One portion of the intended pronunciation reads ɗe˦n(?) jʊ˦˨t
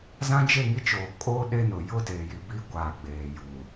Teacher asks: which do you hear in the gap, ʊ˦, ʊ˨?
ʊ˨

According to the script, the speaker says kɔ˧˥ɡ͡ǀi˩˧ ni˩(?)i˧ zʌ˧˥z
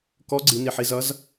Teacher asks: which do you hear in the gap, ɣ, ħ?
ħ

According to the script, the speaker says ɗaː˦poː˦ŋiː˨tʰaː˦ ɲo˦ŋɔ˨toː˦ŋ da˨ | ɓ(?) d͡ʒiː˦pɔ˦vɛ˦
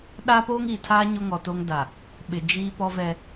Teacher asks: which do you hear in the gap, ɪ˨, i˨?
ɪ˨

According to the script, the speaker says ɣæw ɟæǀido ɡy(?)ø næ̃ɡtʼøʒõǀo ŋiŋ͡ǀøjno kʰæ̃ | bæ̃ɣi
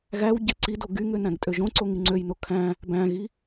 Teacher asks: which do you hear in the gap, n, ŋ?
ŋ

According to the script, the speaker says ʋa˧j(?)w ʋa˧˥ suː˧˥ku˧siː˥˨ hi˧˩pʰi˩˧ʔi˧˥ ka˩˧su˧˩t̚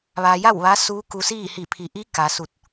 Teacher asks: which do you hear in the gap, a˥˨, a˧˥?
a˥˨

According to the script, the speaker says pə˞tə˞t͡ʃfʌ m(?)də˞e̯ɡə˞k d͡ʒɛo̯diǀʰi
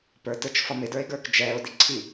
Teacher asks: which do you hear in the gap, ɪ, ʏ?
ɪ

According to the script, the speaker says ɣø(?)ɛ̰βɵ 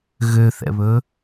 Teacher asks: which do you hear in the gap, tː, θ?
θ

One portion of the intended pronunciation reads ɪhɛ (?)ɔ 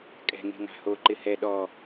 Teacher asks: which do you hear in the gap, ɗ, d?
ɗ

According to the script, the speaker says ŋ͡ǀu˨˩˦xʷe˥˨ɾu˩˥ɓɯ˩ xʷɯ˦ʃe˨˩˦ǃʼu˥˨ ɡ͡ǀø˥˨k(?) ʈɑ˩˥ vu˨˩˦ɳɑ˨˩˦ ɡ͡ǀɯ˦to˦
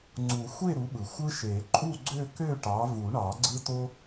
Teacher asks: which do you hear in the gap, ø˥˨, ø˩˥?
ø˥˨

